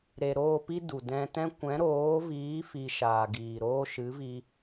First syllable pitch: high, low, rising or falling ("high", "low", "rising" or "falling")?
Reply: low